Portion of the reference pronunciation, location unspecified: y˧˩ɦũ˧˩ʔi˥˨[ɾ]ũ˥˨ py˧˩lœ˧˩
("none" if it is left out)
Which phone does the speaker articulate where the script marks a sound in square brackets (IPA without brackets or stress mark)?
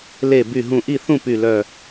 θ